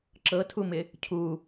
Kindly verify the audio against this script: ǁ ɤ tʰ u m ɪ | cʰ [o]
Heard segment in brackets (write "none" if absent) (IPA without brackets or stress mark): u